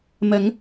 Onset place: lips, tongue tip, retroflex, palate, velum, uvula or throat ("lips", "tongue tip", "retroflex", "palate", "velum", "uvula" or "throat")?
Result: lips